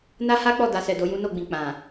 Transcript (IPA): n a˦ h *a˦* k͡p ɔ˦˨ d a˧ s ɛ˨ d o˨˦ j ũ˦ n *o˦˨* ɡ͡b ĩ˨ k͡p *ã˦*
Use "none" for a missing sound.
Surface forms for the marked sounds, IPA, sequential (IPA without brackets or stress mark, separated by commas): a˦, o˦˨, ã˨